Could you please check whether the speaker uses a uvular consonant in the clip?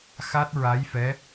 no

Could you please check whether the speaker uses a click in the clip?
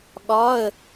no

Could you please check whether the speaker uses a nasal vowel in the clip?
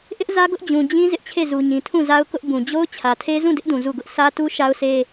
yes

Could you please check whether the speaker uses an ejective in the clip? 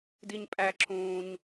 yes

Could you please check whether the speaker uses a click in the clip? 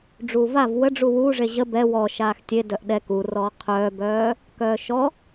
no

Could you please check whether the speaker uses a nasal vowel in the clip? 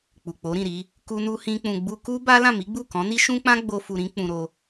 yes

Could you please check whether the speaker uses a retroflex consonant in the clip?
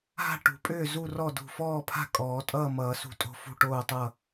yes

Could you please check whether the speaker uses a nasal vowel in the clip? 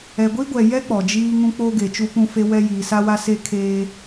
yes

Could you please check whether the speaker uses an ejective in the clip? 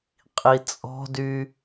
yes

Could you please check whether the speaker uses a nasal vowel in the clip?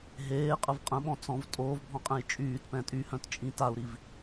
yes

